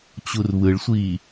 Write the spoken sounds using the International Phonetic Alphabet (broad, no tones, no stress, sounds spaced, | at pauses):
t͡ɕ u r β ɯ ɭ sʷ iː